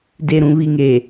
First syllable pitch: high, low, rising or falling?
low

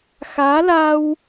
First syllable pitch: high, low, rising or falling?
rising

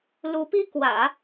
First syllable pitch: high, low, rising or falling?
rising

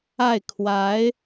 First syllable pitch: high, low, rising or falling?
falling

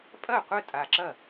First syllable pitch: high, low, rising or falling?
falling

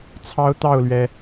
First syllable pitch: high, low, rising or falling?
high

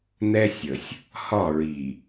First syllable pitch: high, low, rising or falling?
high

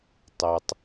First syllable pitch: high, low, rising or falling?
low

